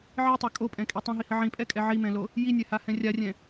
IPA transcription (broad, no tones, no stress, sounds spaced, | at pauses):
ʕ i tˤ a kʼ o pʼ ɛ̃ kʼ i tˤ ɛ̃ ɦ i h ə ʕ ĩ pʼ ɛ kʼ ɛ ʕ i m ɛ̃ l o | j i nʲ ɛ h a h ɛ̃ rʲ a rʲ ɛ̃